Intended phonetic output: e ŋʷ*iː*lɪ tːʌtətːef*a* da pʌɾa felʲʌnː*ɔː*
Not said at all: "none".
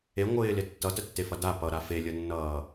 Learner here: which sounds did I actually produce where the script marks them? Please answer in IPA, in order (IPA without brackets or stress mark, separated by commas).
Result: ɪː, ʌ, ʌː